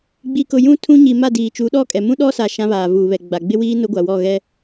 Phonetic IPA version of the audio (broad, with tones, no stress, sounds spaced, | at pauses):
ɡ͡b i˨ k ʊ˨ j ũ˦ tʰ ũ˦ ɲ i˨ m a˦˨ d iː˨ t͡ʃ u˨˦ ɗ ɔ˦ kʼ ɛ˨ m ũ˦ ɗ ɔ˦ s a˨ ʃ ã˦ β aː˨ v uː˨ β ɛ˨ ɡ͡b a˨ ɡ͡b ɪ˦ w iː˦ n ʊ˦ ɡʷ a˨ w ɔ˦˨ ɣ ɛ˦